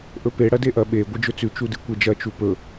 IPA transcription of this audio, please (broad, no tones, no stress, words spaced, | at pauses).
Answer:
ʔɵpe ɽɐdeʔɐ ɓe ɡʷɨd͡ʒɵt͡sʉ t͡ʃudɨkʷed͡ʒɐ t͡ʃupɵ